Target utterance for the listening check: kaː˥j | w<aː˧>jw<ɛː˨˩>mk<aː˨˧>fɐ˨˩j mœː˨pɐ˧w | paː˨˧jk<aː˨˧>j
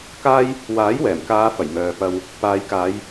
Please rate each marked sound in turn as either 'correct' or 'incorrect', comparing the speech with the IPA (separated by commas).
incorrect, correct, correct, correct